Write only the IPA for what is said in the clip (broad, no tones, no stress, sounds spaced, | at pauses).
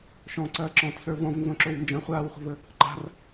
ʃ ɔ̃ ǀ ɐː ǁ ɔ̃ t s ə˞ v ɔ̃ v n z õ ǁ o w n d͡ʒ ɐ̃ χʷ aː w χʷ ə̤ v ə | ǃ a̤ r